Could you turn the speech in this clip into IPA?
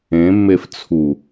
ẽmːef t͡sʰu

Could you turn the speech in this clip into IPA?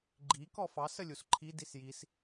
ɡ͡ǃi kɔfɑs əlʲusǃʰi disjis

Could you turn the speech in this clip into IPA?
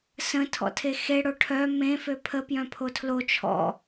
sə̃ tʰɔ̰tʰexe ɽoʈʰœ mẽ føpʰə pjœ̃pʰotʰlo t͡ʃʰɔ̰

